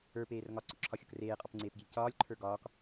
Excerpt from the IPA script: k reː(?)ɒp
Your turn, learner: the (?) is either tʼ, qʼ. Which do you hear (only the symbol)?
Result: qʼ